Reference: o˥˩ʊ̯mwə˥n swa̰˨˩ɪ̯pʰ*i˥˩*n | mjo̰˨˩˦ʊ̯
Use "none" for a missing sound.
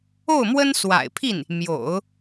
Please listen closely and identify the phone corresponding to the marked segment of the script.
i˥˩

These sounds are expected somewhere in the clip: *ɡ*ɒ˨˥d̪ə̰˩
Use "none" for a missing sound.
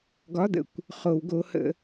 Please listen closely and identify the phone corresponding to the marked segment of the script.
ɡ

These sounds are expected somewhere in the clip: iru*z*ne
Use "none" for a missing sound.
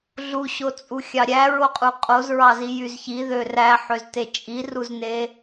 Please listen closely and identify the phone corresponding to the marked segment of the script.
z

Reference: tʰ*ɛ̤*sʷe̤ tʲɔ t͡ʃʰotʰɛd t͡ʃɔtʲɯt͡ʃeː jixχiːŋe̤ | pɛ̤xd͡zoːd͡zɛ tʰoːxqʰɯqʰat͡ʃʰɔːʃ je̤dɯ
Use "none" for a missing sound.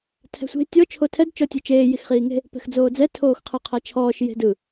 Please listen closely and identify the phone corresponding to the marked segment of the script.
ɛ̤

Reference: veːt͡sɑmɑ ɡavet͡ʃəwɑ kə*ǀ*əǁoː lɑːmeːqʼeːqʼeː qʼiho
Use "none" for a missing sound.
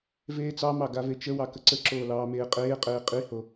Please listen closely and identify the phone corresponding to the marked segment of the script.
ǀ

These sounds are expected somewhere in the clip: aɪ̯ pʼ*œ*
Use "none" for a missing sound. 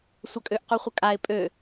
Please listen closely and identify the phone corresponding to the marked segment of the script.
ø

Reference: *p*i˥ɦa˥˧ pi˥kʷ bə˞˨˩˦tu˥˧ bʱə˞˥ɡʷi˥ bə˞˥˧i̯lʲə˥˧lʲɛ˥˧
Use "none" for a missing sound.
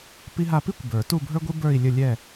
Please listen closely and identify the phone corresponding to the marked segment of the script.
p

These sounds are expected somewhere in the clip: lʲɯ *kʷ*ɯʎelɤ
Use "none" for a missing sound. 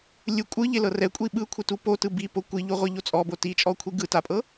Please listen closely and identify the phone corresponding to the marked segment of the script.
kʷʼ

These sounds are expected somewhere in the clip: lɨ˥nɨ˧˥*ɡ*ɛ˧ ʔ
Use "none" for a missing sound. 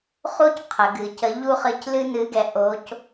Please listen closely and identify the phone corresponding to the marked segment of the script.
ɡ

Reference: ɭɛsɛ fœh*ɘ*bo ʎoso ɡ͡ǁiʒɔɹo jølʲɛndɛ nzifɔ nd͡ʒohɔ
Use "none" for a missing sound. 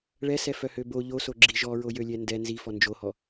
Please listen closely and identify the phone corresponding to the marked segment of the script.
ø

